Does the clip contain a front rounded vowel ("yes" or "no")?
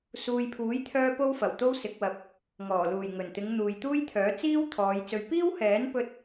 yes